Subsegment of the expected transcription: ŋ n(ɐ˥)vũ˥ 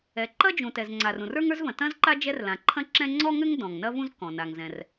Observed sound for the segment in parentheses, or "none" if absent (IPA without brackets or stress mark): ɐ˥